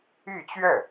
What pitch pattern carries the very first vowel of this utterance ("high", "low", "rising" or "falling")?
falling